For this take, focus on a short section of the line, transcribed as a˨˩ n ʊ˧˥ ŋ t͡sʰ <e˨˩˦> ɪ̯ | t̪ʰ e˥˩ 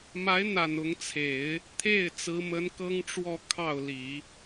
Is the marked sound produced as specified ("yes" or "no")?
yes